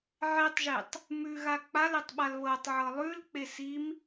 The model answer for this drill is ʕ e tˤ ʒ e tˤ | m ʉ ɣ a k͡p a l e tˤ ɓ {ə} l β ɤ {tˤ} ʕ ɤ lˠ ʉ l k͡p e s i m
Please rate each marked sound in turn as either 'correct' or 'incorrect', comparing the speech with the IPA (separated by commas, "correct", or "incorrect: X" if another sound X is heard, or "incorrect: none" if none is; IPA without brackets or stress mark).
incorrect: a, correct